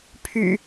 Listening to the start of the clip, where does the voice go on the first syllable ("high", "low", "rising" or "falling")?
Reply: low